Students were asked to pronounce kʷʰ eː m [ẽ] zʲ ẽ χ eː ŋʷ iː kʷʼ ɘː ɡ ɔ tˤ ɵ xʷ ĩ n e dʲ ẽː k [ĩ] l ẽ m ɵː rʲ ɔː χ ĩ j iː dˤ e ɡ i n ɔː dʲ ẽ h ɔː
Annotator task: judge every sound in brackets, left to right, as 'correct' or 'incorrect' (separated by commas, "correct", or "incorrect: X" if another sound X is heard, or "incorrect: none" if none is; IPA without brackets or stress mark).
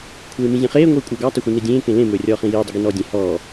incorrect: ĩ, incorrect: ẽ